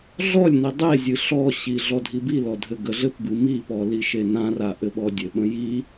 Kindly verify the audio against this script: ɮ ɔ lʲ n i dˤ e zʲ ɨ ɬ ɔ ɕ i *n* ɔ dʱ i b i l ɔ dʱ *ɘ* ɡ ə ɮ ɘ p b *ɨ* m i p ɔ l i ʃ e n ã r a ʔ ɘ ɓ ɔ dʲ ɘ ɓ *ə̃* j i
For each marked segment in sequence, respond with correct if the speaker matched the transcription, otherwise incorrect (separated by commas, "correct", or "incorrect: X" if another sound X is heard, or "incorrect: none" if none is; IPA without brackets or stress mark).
incorrect: ɮ, correct, correct, correct